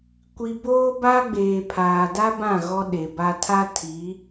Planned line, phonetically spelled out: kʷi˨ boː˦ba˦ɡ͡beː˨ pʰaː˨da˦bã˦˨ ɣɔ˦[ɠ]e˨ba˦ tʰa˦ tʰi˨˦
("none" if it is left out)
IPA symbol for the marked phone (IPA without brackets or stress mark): ɗ